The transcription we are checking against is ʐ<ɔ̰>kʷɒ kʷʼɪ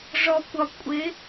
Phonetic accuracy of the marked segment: incorrect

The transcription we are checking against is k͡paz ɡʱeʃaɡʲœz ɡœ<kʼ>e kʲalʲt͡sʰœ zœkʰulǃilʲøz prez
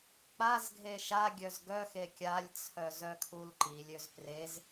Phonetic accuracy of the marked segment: incorrect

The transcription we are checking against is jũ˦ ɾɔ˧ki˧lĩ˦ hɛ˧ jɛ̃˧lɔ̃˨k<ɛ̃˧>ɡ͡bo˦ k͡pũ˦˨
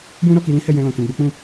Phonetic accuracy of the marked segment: correct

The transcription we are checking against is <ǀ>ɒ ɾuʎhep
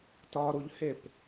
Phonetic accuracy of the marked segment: incorrect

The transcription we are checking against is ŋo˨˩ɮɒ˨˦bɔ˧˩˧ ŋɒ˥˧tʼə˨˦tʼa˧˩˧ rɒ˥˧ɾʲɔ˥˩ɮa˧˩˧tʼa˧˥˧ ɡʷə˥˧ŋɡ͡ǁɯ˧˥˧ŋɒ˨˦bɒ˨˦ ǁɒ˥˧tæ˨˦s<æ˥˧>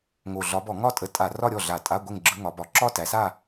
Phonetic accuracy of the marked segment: incorrect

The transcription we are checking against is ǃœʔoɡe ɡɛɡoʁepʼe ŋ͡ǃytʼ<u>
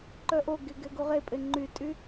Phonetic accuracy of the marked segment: incorrect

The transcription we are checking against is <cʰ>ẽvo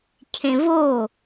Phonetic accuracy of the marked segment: correct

